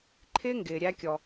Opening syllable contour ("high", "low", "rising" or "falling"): high